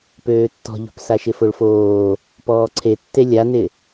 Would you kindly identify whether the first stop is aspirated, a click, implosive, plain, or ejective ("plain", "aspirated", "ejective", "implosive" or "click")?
plain